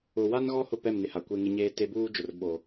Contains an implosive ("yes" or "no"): yes